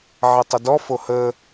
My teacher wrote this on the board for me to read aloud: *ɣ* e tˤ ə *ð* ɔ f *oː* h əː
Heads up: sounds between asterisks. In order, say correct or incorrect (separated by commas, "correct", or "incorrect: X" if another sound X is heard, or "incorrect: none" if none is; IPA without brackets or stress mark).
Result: incorrect: ʕ, incorrect: d, incorrect: o